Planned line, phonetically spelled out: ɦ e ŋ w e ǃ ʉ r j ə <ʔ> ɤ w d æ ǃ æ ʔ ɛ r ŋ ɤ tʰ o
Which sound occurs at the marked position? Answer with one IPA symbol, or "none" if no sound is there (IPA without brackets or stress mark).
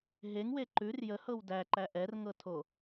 h